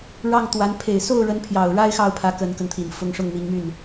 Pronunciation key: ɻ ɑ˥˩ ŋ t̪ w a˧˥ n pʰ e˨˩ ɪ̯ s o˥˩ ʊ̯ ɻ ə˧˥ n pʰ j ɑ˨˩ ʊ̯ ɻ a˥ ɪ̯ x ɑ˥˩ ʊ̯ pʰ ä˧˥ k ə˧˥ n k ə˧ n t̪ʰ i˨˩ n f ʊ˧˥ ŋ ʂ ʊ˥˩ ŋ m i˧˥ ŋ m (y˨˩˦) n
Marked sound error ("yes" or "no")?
yes